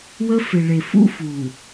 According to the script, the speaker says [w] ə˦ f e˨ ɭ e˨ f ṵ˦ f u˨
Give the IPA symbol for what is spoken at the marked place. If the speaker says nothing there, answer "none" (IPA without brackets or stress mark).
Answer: w